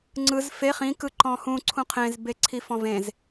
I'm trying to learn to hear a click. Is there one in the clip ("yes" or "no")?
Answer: yes